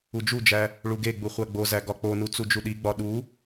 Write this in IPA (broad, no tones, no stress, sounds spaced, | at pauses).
u d͡ʒ u d͡ʒ æ | ɭ u ɡ e ɡ͡b u χʷ æ ɡ͡b o z æ ɡ ɒ k͡p o n u t͡s u d͡ʒ u ɗ i ɡ͡b ɒ ɗ u